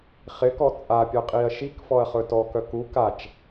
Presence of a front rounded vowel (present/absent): present